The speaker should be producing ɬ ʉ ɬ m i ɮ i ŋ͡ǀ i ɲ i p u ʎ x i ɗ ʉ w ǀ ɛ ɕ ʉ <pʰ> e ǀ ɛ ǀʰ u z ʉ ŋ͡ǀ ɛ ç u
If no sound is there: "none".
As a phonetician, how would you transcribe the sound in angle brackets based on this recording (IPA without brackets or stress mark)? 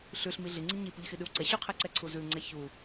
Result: qʰ